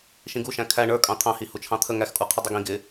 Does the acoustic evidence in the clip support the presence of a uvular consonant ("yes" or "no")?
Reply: yes